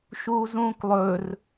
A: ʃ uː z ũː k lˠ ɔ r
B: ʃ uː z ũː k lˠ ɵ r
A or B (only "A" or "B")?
B